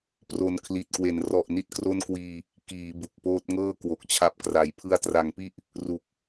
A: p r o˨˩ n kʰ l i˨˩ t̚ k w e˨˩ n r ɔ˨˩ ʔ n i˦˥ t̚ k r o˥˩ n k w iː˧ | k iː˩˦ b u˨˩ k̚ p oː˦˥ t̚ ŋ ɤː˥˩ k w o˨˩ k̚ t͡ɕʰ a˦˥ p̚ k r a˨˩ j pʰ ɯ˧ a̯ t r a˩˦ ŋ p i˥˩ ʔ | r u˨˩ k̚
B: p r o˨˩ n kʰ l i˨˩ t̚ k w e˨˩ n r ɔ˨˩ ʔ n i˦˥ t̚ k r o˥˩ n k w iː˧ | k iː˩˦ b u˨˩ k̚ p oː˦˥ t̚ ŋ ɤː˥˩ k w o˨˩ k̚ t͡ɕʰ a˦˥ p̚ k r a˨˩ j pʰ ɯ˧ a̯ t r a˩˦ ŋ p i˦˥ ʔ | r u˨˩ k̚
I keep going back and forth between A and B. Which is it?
A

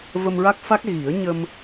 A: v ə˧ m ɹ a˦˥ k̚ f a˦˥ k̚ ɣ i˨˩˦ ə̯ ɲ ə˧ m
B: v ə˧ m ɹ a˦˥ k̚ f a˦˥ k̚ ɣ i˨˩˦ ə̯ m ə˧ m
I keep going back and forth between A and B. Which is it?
A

